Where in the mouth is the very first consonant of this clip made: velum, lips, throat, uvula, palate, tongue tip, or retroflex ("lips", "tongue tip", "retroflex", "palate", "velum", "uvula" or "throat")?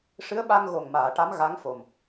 retroflex